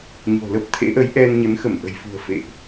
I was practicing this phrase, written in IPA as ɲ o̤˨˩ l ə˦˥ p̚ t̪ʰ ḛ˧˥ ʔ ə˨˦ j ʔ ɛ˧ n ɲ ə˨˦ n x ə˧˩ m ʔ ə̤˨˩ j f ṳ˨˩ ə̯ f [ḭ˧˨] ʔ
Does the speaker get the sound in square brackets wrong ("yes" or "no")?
yes